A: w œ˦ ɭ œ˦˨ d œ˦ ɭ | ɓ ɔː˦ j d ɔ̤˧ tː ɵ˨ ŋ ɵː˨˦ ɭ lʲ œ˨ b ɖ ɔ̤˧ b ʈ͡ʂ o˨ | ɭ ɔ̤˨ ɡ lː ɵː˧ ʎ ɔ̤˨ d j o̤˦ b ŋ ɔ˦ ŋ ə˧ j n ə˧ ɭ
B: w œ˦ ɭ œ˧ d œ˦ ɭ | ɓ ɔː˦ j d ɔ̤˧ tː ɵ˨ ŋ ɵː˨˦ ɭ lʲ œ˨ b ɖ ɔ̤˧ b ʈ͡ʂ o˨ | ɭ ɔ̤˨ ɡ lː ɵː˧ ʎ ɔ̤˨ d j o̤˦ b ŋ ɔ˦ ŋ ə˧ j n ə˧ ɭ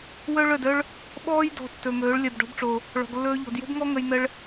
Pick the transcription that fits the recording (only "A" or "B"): A